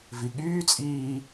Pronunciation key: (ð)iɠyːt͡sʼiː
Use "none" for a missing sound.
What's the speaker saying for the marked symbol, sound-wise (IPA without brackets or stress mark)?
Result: v